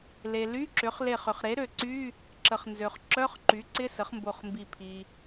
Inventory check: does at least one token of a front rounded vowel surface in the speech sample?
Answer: yes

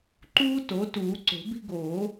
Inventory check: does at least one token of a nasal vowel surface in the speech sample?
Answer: no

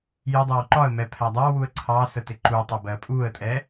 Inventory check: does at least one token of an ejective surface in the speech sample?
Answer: yes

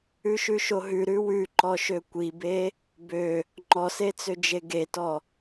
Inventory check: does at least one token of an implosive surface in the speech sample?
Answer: no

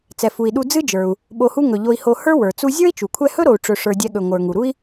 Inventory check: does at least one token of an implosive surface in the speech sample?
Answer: yes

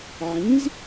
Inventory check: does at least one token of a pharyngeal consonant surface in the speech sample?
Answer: yes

